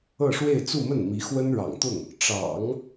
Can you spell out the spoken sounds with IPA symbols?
ɤ˥˧ ʂ w e˥˧ ɪ̯ t͡s u˥˧ m ə˥˩ n m i˧˥ x w ə˥ n ɻ ɑ̰˨˩ ŋ t̪ ʊ˥˩ ŋ | ʈ͡ʂ ɑ̰˨˩˦ ŋ

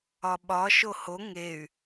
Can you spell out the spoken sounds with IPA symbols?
ɒ ɓ ɒ ʃ o h o ŋ e y̯

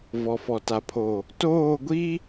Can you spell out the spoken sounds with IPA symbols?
v ɔ˨ f ɔ˨ t a˨ pʰ o˨ | t oː˦˨ ɡʷ i˦

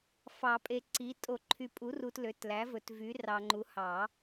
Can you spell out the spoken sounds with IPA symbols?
f ɑ˨˩˦ pʼ e˨ ǀ i˩˥ tʼ o˨˩˦ ǃʰ y˨ pʼ u˩˥ r u˨ t l ø˩˥ t l æ˩˥ v ɵ˨˩˦ t v y˩˥ r ɑ˨ ŋ͡ǃ u˩˥ h ɑ˨˩˦

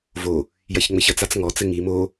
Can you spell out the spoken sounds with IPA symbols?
v o | j ɐ ç ŋ͡m ɘ ç ɐ t͡s a t͡s ŋ ɔ t͡s ɘ ŋ i m o

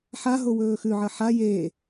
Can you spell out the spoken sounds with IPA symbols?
ħ a ɦ o w ɵː x ʉ ʕ ɐ ħ a j eː

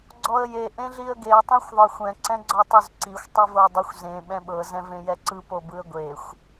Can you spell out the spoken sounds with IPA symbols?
ɡ͡ǀ ɔ ə̯ j e ʔ ẽ ɮ i ə̯ ɡ e ə̯ tˤ ẽ xʷ ðˤ ɤ xʷ ɛ̃ ǀ ɛ̃ ɡ͡ǀ ɔ tˤ o z ǀ i xʷ tˤ ɯ v ɤ ə̯ dˤ ɯ xʷ z ẽ ɓ ɛ̃ ɓ ɤ z ɛ̃ v ẽ j ɛ ǀ ɯ p o b ɯ ə̯ ɡʷ e xʷ

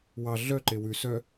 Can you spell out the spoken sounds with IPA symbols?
w ɑ ɮ œ ǃ e w ʉ s œ

